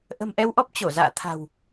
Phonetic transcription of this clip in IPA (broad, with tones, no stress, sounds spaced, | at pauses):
ʔ ə̤˨˩ m ʔ ɛ˧ w ʔ ɔ˦˥ p̚ t͡ɕ o˧˩ z a̰ː˧˨ t̪ʰ a̤˨˩ w